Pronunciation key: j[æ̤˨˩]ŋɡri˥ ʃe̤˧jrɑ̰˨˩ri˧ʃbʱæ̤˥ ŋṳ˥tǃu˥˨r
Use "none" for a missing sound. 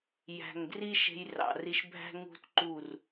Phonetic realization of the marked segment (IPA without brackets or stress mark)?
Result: æ̤˨˩